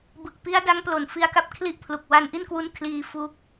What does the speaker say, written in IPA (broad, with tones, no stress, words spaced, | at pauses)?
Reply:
bɯ˨˩k̚pi˦˥a̯da˦˥ŋ plo˨˩nfi˧a̯ka˥˩p̚ kʰli˥˩ʔpʰlu˨˩k̚ wa˧nʔi˥˩nkwu˦˥n kʰliː˧fu˦˥k̚